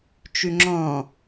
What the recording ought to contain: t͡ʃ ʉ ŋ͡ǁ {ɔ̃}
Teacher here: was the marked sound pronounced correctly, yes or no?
yes